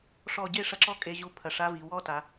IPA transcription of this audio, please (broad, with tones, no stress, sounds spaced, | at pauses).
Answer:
ʂ ɔ˧˩ ɟ e˥˧ ʂ ɐ˧ ǁ ɔ˥˧ kʼ e˧ ʑ u˧ pʰ ɐ˧˩ ʂ a˦˥ v i˩˧ w ɔ˦˥ t a˩˧